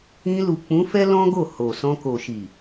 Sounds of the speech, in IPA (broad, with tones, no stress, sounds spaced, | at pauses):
ĩ˧ l u˨ k͡p ũ˨˦ f ɛ˦ l ɔ̃˦ ɡ o˦˨ h o˨ s ɔ̃˧ k o˨ ʃ i˨